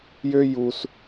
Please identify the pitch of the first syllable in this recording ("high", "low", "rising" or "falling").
high